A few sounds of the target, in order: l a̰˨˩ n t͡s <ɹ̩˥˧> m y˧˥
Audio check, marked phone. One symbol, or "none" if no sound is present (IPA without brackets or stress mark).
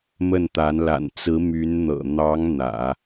ɹ̩˧˥